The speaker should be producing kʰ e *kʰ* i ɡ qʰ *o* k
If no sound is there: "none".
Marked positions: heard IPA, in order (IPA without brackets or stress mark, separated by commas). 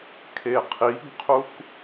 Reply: qʰ, u